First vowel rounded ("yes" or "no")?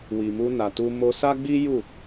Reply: no